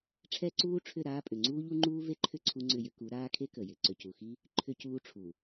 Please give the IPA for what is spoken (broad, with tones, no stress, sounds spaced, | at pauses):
ʈ͡ʂʰ ɛ˦ ǀ uː˦ ʈ͡ʂʰ ʏ˦˨ ɾ aː˦ pʼ ʏ˨ ŋ͡ǀ uː˦ ʎ u˦ ŋ͡ǃ uː˦ v e˦ ǃʰ ʏ˦ ǀʰ u˦ ŋ͡ǀ ʏ˦˨ j ʏ˦ k u˨˦ ɾ aː˦ kʰ e˦ k ə˨ j ɪ˨ ǀ ʏ˨ c u˨ x i˦ | ǃʰ ʏ˦ c uː˦ ʈ͡ʂʰ u˨